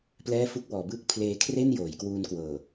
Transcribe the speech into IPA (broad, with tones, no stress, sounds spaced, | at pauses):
p l ɛː˥˩ f u˥˩ k̚ w ɔː˩˦ b ɯː˥˩ k̚ pʰ l eː˧ kʰ r e˥˩ n j oː˩˦ j k w uː˧ n k w ɤː˨˩